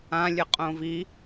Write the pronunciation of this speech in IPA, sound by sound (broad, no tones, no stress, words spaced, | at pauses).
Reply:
ã lʲɘqʼõvi